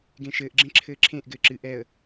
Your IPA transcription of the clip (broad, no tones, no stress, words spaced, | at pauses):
ɡẽʃɘːʔɡ͡ǁẽ ǁʰɘːǁʰẽʔ ɡɘːǁɨ ʔɛə̯